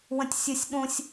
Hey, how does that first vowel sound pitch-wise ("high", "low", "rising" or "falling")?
high